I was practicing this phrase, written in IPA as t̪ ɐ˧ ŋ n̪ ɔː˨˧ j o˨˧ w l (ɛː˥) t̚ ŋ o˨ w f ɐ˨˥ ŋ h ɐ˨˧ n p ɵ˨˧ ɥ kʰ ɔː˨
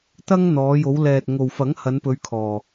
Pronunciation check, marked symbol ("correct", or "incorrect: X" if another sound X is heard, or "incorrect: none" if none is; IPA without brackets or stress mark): incorrect: ɛː˨